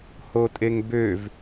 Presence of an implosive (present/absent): absent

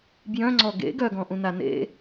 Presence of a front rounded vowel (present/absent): present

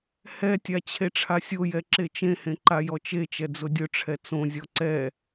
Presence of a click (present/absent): present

